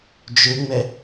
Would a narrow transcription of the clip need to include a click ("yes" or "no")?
no